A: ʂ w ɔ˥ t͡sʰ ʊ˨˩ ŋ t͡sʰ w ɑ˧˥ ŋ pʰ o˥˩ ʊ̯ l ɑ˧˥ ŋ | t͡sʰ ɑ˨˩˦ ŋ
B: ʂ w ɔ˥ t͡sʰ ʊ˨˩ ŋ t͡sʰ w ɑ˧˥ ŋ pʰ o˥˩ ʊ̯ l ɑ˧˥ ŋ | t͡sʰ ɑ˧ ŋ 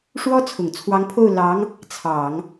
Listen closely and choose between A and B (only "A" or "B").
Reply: A